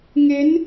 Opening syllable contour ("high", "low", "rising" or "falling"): rising